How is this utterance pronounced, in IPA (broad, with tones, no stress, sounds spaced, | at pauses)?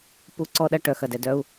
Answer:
p u˨ ǀ ɔ˨ ɗ ɐ˨ ʈ œ˩ x ɐ˩ d ɛ˩ d œ˨ u̯